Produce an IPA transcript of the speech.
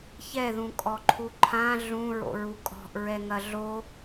ç ɛ ð ũ kʼ ɔ ǃʰ u ǃʰ ã ɮ ũ ɹ o̰ ɹ u kʼ ɔ̤ ʔ ɹ ɛ ŋ ɐ ɮ o

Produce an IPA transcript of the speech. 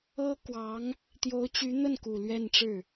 ɤ˥ k w ɑ˧˥ ŋ | t̪ j o˧˥ ʊ̯ t͡ɕ y˧˥ n̪ ə˥˩ n k u˨˩ l ɥ ɛ˥˧ n ʈ͡ʂ ɻ̩˥˩

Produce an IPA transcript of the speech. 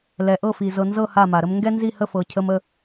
l ɛ˨ ʔ ɤ˦˨ f i˨ z ɤ˨ n z ɤ˦˨ h a˦˨ m a˨ ɾ ə˦ m ŋ ɡ ɛ˦ n z i˦˨ h ə˦˨ f ɤ˨ cʰ ə˦ m ə˦

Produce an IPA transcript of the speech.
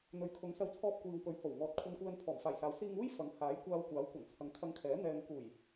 n̪ ɵ˨˧ ɥ kʰ ʊ˨˧ ŋ s ɐ˧ w t͡sʰ ɔː˧ p̚ kʷ iː˨ w p ɵ˨˥ ɥ h o˨˩ w ŋ ɔː˨ t̚ kʷʰ ɐ˧ n kʷ ɛː˧ n pʰ ɔː˨˩ m f aː˨˩ j s aː˨˥ w s iː˧ ŋ uː˥ j f ɐ˨˥ ŋ h aː˨˥ j kʷ aː˧ w kʷ aː˨˥ w kʷ ɐ˨˩ n t͡sʰ ɐ˨˧ ŋ t̪ʰ ɐ˧ ŋ kʰ ɛː˨˥ n̪ ɛː˨ ŋ k uː˨˩ j

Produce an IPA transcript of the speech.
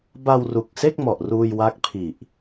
b a˧ w r u˨˩ k̚ s e˥˩ k̚ m ɔ˨˩ ʔ r uː˧ j w a˦˥ k̚ pʰ i˨˩ ʔ

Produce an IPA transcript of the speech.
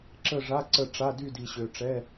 ǁ ə˦˨ ʐ a˧˥˧ ǀ ə˦˨ ʈ͡ʂ a˧˥˧ d y˦˨ d i˨ ɕ ø˨ ʈ͡ʂ ɛ˧˥˧

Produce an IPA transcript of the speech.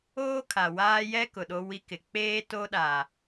oː˦ kʰ a˨ w aː˦ j ɛ˦ k ʊ˨ ɗ o˦ w i˦ k ɪ˨ k͡p eː˦ t o˦ ɗ a˨

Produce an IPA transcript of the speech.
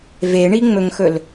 v e ɳ i ŋ͡m ɵ ŋ x ɵ l

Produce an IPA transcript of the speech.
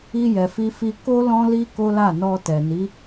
i˧ j ɛ˨ f i˧ f i˧ k o˦ l ɔ̃˦ l i˦ k o˦ l a˦˨ n ɔ˧ t ɛ˨ n i˨˦

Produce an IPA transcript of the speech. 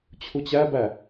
t͡ɕʰ u t͡ɕ æ b æ

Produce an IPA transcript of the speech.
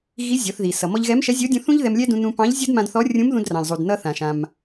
ɣ i˧˥ zʲ ɔ˩˧ θ ð i˩ s ʌ˩ m ɔ˧ ʎ ɣ ɛ˧˥ m ʃ ɛ˧˥ zʲ o˧˥ dʲ ũ˧ θ ũ˥ ʎ ð ɛ˧ m lʲ ɛ˥ d ũ˧ n ũ˧ p ɑ̃˧˥ ʎ zʲ o˥ d m ã˧ d θ ɔ˧˥ rʲ ũ˧˥ m ð ũ˧ d r ɑ̃˩ ʎ zˤ u˩ d n ʌ˧ θ ã˩ ʃ ã˩ m

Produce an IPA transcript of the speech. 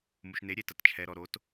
m u˨ ʃ n e˨˦ ɾʲ e˨ t ɐ˨ t t͡ʃʰ ɛ˨ ɾ ɔ˨ ɾ o˨˦ t

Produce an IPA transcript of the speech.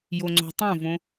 j o ŋ͡ǀ o̤ tˤ õ v õ

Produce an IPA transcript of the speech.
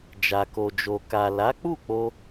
d͡ʒ a˨ k o˨ d͡ʒ o˨ k a˨ l a˨˦ k͡p u˦˨ k͡p o˧

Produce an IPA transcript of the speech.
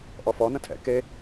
ʔ ɔ f ɔ n ə̃ tʰ ɛ̰ k e

